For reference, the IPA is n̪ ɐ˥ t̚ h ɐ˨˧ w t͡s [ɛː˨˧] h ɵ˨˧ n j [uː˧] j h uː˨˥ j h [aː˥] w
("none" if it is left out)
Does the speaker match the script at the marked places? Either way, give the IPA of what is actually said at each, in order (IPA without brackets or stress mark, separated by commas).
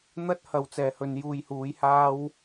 ɛː˨, uː˧, aː˥